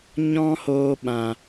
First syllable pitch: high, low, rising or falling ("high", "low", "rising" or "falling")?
high